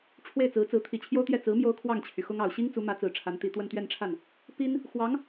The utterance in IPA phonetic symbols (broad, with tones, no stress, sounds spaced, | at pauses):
ʈ͡ʂʰ w e˥˩ ɪ̯ t͡s ɹ̩˧˥ t͡s ɹ̩˧˥ t̪ʰ i˨˩ t͡ɕʰ j o˥ ʊ̯ t̪ j ɛ˥˩ t͡s ɹ̩˧˥ m j o˥ ʊ̯ kʰ w ɑ˥˩ ŋ t͡ɕʰ y˩ x ʊ˥ ŋ ɑ˨˩ ʊ̯ ɕ i˥ ŋ t͡s u˧˥ m ä˧˥ t͡s ɹ̩˨˩ ʈ͡ʂʰ a˧˥ n t̪ i˨˩ t̪ w ə˥˧ n t̪ ɥ ɛ˥˧ n ʈ͡ʂʰ a˥˩ n | p i˥ n | x w ɑ˧˥ ŋ